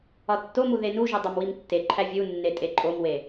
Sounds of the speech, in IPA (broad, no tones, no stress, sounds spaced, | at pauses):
ɒ tː o m u ð e n u ʒ u dˤ o m w i m tː e ǃʰ æ vʲ u nː e tʼ e ǃʼ o m w e